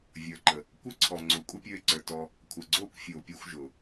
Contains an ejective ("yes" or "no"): yes